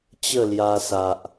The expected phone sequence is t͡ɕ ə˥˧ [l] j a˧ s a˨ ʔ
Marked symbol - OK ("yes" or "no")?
yes